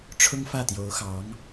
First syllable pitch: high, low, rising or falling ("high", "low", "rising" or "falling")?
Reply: high